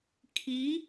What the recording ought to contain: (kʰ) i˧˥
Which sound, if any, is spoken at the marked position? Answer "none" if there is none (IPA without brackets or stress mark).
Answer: kʰ